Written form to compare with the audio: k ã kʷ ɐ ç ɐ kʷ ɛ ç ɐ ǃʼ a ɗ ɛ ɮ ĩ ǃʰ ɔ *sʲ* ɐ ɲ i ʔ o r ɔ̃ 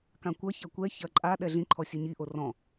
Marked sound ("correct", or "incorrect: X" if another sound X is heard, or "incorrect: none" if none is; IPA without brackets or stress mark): correct